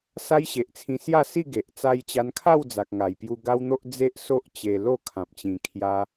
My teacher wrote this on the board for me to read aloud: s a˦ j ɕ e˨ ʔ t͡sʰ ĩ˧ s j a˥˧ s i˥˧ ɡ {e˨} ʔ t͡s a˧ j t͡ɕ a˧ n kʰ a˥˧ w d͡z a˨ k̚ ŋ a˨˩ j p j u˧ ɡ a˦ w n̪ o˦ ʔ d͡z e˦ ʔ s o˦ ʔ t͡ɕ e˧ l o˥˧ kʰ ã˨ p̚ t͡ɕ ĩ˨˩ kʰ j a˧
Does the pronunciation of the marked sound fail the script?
no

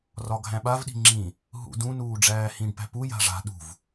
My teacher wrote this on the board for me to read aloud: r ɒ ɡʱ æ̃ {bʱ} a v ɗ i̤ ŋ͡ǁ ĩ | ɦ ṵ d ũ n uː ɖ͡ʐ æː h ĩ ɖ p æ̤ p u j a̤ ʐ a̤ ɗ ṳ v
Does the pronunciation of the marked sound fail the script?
yes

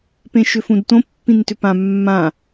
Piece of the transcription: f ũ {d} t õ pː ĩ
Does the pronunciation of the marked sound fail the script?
no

